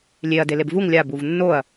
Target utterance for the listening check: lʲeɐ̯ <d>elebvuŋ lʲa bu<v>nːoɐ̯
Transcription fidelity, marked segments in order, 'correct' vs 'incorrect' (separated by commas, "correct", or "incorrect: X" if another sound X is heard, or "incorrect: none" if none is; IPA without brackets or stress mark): correct, correct